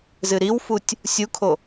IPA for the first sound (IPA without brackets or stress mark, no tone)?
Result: z